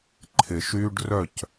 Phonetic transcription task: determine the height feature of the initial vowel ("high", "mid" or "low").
high